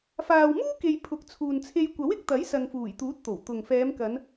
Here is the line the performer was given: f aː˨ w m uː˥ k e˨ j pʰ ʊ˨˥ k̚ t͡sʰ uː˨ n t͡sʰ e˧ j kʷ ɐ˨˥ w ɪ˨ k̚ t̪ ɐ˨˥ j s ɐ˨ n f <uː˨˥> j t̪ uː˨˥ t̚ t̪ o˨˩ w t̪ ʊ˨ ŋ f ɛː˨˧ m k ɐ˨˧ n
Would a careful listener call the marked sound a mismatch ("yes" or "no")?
yes